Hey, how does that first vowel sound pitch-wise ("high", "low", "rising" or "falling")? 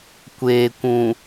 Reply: low